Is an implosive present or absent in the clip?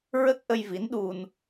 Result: present